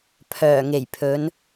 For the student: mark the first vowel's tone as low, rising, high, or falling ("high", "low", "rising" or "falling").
low